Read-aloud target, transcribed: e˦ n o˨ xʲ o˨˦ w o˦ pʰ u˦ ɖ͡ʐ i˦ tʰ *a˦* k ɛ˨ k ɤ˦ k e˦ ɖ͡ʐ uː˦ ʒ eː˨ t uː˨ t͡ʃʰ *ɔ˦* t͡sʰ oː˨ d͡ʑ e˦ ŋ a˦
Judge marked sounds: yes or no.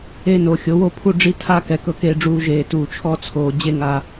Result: yes, yes

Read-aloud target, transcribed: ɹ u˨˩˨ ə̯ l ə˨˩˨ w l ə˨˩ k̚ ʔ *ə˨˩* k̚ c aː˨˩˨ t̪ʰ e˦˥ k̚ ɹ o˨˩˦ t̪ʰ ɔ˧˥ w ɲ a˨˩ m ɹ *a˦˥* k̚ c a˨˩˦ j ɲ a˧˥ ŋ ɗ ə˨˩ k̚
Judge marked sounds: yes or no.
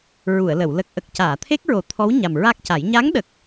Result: yes, yes

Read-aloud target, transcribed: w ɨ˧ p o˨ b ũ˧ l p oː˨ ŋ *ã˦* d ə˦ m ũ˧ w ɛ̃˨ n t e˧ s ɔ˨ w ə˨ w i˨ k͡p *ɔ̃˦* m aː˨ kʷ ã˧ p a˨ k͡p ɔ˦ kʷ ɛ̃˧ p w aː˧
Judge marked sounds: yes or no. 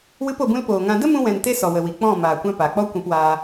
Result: no, no

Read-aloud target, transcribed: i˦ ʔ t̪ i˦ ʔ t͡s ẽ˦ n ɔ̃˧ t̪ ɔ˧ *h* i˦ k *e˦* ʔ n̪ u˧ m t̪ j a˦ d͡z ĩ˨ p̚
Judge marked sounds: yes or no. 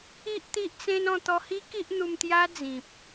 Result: yes, no

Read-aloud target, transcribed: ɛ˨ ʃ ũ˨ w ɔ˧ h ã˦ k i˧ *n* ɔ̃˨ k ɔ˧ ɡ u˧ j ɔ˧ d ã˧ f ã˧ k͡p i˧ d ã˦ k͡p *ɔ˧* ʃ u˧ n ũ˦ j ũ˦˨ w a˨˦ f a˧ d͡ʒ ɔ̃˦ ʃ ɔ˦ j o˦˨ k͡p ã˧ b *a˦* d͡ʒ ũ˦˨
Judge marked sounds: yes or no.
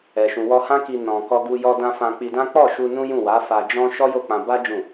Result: yes, no, yes

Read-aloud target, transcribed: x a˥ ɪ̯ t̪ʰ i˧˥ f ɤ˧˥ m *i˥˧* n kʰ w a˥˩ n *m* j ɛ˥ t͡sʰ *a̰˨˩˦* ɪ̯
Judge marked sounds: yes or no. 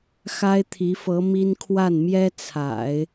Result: no, yes, yes

